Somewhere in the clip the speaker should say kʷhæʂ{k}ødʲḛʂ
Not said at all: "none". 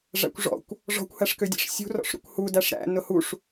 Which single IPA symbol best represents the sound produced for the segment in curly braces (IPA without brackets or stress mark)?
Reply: k